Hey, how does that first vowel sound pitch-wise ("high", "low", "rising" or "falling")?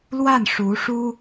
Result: falling